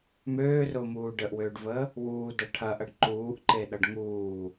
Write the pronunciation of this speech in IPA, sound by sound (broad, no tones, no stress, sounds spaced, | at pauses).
m øː r ʊː m uː ɖ ə ʔ w øː ɖ v əː | w uː d ʌ ʈʰ ɐ ʔ ɐ ɖ ǃ uː ʔ ǃ e ɗ ʌ ɖ ŋ uː